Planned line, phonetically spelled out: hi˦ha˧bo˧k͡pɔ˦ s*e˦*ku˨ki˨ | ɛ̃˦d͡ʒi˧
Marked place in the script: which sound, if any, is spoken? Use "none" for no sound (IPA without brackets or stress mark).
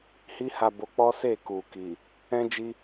e˦˨